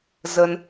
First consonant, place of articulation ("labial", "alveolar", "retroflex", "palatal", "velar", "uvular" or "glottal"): alveolar